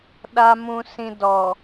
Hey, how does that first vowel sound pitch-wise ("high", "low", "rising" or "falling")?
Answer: low